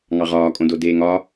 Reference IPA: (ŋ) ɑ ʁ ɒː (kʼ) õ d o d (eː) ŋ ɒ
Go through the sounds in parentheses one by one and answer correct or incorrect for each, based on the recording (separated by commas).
correct, correct, correct